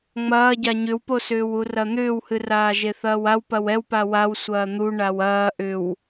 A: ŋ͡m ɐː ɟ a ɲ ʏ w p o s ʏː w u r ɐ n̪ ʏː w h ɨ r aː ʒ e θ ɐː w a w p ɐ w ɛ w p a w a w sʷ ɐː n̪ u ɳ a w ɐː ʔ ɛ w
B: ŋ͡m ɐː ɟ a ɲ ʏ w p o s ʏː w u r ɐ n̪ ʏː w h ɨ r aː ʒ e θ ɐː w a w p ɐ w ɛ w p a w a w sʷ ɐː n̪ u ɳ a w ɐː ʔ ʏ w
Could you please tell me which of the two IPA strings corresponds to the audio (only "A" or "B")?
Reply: B